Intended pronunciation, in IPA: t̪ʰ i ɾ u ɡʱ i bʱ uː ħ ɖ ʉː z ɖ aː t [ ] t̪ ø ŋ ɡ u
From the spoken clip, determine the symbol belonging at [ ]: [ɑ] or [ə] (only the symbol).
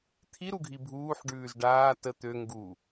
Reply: ə